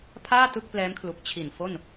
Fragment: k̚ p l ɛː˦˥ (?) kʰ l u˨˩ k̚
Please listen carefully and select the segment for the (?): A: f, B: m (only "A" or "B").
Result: B